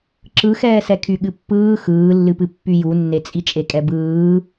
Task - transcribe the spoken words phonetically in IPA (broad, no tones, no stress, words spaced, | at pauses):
ǁɯxɛːsɛ kʰyɠɨpːɯː xɯːlːɨpɨ pːyjunːe t͡sʼit͡ʃʼekʼɛbɯː